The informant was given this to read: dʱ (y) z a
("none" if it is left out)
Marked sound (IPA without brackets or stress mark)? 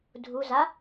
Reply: u